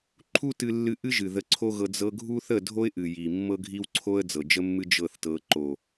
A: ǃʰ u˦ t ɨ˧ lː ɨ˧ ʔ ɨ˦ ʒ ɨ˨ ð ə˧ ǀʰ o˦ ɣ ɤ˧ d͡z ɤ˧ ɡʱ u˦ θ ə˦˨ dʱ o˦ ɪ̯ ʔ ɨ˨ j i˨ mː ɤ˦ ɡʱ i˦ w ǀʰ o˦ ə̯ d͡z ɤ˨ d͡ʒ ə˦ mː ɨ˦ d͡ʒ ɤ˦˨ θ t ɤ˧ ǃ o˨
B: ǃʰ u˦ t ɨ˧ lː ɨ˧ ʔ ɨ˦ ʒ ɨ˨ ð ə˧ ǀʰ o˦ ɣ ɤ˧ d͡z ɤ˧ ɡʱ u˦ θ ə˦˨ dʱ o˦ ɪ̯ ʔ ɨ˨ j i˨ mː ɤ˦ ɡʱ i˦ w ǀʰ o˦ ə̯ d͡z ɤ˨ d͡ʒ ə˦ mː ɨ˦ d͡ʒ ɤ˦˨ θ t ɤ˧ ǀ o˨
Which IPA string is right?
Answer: A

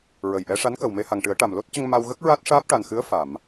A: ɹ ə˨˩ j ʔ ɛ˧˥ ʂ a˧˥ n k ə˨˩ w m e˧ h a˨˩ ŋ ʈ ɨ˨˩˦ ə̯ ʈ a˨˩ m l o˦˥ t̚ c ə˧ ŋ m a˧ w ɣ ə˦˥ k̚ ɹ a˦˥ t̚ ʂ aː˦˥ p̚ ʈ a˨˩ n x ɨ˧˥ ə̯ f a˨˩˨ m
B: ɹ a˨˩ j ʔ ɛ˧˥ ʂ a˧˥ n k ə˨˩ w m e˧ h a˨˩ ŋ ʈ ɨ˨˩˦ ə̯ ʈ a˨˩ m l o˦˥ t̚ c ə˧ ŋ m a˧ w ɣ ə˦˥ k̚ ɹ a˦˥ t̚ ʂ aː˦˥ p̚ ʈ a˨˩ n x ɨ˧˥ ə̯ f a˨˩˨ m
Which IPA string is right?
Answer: A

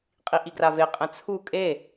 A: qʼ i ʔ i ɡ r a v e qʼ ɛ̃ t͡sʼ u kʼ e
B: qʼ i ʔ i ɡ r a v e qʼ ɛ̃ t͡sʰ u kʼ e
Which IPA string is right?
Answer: B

